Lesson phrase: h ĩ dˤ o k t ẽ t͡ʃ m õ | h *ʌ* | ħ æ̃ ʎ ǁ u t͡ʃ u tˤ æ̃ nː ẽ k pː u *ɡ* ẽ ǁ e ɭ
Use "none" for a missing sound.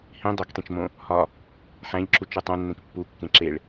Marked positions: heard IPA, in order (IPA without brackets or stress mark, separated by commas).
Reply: ɒ, kː